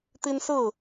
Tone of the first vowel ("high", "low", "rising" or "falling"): high